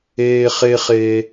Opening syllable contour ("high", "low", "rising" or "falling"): high